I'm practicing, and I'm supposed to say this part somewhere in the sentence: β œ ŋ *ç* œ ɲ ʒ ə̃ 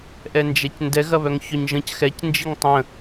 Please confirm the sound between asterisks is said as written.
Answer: yes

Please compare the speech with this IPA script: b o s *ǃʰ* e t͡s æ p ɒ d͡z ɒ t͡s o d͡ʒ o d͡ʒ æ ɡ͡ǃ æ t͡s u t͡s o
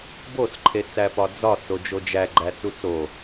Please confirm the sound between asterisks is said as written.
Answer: yes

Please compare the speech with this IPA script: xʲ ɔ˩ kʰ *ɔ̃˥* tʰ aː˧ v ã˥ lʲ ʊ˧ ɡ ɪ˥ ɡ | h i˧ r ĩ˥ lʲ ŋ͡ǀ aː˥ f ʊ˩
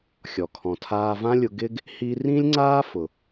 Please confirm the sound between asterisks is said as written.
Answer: no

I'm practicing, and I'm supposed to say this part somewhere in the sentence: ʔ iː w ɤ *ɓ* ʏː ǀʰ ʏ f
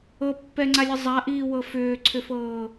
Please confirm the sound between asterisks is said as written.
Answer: no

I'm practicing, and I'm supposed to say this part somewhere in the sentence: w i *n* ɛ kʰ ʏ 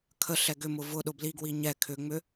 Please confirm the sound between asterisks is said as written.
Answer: no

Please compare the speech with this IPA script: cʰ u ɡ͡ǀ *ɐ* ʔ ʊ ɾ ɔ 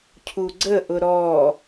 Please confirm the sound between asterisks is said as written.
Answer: no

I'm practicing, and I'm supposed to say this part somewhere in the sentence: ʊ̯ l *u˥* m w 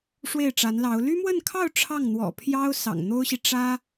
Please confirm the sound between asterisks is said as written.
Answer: no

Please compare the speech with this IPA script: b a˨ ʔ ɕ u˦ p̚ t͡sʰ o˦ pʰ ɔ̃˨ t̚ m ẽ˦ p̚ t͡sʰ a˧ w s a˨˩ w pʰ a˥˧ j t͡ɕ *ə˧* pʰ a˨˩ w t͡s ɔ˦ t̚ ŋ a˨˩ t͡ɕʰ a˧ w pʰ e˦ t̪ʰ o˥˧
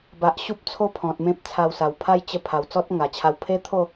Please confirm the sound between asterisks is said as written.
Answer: yes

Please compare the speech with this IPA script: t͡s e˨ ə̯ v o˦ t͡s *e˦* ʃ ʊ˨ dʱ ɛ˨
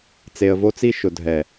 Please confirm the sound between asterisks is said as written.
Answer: no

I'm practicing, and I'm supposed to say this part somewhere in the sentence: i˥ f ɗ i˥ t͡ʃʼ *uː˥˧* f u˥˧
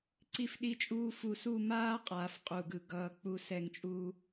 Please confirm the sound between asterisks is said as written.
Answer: no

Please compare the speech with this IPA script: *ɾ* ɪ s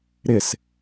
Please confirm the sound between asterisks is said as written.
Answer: yes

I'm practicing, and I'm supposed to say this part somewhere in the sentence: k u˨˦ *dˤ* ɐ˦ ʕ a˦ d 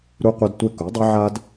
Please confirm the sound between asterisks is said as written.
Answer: yes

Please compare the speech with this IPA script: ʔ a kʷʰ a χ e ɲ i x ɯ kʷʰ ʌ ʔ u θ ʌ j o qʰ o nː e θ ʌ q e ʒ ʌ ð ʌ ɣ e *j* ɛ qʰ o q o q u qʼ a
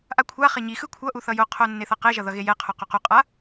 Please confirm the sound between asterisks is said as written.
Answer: yes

